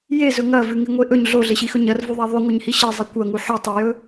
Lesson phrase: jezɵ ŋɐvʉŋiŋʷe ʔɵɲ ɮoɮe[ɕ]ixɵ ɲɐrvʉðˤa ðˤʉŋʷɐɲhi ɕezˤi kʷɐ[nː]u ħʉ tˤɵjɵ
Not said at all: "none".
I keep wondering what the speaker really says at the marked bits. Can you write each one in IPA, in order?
ɕ, ŋ

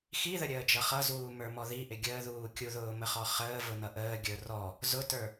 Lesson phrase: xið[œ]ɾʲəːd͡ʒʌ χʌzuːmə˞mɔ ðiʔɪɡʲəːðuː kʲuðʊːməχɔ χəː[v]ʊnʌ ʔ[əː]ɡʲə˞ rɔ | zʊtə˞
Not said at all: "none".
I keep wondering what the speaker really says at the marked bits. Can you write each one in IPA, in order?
ə, v, əː

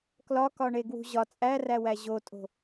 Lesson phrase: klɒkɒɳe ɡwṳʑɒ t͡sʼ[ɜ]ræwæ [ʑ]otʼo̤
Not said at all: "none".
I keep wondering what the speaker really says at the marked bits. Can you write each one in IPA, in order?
æ, ʑ

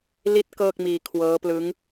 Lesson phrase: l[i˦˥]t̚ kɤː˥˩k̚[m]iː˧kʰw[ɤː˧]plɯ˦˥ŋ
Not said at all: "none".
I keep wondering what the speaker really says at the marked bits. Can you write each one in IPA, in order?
i˦˥, m, ɤː˦˥

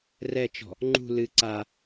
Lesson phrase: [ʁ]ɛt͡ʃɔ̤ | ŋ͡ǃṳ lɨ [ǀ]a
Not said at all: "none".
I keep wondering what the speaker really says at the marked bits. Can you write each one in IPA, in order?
r, ǀ

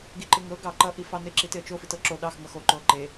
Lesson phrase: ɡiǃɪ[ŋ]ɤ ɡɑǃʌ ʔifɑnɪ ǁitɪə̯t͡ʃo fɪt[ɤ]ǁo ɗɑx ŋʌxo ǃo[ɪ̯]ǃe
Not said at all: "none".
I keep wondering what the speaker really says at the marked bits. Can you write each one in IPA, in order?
ŋ, ɤ, ə̯

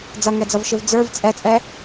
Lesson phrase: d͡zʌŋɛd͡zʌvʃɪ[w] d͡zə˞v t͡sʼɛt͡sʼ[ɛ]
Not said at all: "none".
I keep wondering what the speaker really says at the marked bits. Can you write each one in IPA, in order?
v, ɛ

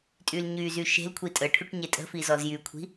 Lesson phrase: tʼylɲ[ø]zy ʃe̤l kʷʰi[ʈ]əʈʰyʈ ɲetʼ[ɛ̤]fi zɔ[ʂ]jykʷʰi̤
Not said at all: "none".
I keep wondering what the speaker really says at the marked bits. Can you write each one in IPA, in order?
y, tʼ, ə̤, z

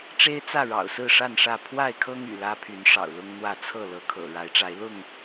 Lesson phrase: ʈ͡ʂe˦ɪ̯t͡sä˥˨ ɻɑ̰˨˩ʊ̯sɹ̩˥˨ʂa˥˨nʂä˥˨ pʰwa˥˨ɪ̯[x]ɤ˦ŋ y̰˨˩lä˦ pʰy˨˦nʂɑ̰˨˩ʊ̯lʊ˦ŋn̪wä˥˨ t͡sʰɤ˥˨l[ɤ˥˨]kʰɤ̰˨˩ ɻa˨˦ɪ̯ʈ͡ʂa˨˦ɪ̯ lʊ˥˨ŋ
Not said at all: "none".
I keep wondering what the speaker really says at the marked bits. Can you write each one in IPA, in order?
kʰ, ɤ˨˦

